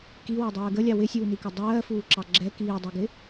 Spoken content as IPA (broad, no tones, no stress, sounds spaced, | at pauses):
k i w ɜ dˤ ɜː ɡ ə lʲ ɑ w ɪ sʲ uː n i k ɪ dˤ ɜː f uː ǁ ɑ ɡ͡ǁ ɛ k iː dˤ ɜ ɡ ɪ